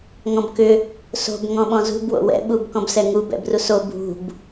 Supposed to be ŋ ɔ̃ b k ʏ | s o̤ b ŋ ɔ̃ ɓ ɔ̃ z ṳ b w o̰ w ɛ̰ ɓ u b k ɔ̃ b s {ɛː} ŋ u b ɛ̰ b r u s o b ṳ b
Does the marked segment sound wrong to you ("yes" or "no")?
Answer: yes